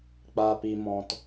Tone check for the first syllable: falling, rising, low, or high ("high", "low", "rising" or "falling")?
low